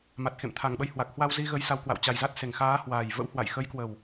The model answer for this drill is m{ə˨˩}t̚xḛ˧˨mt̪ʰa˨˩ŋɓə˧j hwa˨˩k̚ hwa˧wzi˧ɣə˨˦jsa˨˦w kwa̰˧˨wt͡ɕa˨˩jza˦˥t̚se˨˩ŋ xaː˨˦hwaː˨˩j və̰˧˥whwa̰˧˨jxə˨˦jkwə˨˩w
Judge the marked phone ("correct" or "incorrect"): incorrect